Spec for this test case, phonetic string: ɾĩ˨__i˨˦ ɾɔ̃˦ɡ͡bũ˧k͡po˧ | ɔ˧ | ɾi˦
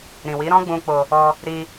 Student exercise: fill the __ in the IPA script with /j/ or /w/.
w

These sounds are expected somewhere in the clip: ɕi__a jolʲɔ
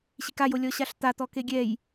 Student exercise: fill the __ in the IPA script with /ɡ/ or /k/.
k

